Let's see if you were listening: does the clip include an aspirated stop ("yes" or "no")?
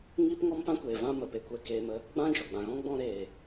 no